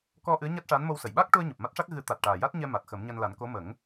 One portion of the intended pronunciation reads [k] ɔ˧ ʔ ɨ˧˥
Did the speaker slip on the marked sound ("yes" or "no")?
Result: no